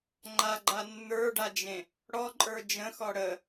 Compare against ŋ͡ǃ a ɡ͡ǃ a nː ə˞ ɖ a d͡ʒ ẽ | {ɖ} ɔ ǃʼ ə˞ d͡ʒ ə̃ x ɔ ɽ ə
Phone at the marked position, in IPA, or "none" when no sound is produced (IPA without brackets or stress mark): ɽ